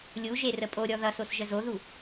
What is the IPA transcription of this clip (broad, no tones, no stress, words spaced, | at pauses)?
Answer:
lʲuʒe rəpʼoɾʲɔ ðʌsos ʒəzoðu